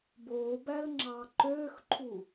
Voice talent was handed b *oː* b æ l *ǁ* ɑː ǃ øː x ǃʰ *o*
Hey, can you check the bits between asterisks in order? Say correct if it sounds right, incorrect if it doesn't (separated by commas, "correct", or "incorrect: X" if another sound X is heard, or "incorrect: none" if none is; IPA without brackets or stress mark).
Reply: correct, incorrect: ŋ͡ǁ, incorrect: u